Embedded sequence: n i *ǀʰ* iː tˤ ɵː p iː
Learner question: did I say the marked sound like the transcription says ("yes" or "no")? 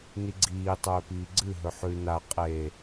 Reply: no